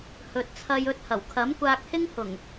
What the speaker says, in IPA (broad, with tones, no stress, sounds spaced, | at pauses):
h ɵ˨ t̚ t͡sʰ ɐ˧ j ɵ˧ t̚ h ɐ˨˩ w kʰ ɐ˨˥ m kʷ aː˧ k̚ h ɪ˥ ŋ h ʊ˨˩ ŋ